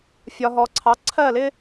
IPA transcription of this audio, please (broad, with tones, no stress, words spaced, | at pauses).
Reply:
fʲɒ˨ɦɔ˨ǀʰɑ˩˥ ǀʰɜ˦˨lɪ˦